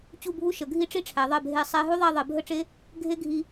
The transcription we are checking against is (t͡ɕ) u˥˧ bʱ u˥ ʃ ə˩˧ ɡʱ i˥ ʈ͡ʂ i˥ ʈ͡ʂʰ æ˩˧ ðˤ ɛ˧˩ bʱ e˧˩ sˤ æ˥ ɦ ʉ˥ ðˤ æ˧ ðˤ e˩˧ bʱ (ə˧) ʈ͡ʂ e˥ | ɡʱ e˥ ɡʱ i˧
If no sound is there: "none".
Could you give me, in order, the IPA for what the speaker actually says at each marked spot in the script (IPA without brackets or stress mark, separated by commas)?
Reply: t͡ɕ, ə˥˧